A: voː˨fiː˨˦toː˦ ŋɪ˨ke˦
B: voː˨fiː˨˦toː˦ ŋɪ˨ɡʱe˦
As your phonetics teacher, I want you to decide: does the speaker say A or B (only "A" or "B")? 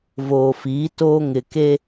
A